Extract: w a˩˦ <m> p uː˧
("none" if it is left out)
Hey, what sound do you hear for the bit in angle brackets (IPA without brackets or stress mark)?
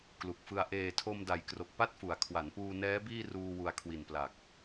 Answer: n